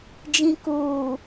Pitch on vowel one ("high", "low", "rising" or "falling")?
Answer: low